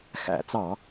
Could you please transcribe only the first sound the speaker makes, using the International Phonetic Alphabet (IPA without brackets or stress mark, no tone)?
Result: x